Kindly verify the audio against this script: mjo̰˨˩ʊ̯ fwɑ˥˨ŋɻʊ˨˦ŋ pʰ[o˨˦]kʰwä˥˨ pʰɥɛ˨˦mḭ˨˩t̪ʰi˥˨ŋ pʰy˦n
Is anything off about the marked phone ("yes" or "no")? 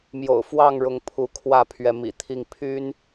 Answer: yes